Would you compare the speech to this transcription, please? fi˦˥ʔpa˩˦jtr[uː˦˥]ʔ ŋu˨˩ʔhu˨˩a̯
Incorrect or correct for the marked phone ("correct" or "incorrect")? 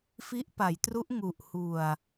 incorrect